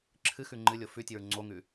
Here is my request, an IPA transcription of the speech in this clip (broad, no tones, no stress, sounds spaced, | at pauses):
ǁʰ ɨ x ʉ ŋ͡ǃ ɨ lʲ o f ʉ tʲ ɨ ɹ ŋ͡ǀ o ŋ ʉ